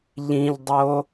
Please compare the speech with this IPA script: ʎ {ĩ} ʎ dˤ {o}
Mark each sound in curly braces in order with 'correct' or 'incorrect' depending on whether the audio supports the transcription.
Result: correct, correct

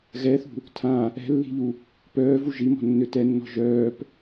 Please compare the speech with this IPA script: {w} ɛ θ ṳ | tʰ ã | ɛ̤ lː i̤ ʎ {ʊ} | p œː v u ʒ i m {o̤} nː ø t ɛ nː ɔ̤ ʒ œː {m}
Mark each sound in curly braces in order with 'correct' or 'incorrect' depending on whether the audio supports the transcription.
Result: incorrect, incorrect, incorrect, incorrect

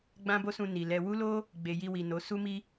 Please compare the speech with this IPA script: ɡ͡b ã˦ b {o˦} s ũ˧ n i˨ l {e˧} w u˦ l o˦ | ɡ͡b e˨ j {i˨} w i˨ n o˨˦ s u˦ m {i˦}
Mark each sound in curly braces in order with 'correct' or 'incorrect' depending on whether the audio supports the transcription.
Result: correct, incorrect, incorrect, correct

